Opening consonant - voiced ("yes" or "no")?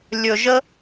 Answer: yes